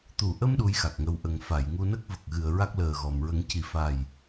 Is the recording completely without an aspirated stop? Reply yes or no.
yes